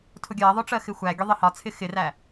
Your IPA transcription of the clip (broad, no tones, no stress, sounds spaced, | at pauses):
tʰ ʊ ɡʲ ɜ ðˤ ʊ ʈ͡ʂ ɜ x ɪ xʷ æ ɡʲ ʊ ðˤ ɪ h ɒ t͡sʰ ɪ x ɪ r æ